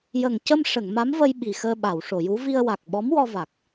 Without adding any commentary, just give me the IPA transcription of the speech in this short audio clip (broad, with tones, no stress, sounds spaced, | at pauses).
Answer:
j ə˨˩ ŋ c ə˧ m ʂ ə˨˩˨ ŋ m a˧˥ m v ə˧ j ɓ i˨˩ x əː˧ ɓ a˨˩˨ w ʂ o˨˩˨ j u˧˥ v i˧ ə̯ w a˨˩ k̚ ɓ ɔ˧˥ m w ɔ˧ v a˨˩ k̚